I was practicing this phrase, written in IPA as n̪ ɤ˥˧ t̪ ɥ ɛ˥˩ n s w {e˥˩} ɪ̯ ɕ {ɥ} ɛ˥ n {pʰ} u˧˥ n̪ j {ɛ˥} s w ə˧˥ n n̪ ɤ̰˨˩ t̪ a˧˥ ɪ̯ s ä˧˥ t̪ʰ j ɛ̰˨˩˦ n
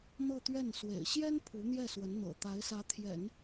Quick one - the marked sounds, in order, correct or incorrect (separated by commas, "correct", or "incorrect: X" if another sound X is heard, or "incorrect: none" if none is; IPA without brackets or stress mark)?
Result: incorrect: ḛ˨˩, incorrect: j, correct, incorrect: ɛ˥˩